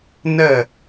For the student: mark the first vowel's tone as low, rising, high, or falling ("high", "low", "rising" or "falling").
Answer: falling